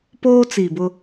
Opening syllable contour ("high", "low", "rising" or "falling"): high